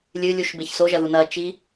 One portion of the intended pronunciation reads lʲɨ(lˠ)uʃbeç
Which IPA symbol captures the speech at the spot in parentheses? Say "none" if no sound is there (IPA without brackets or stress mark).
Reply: lʲ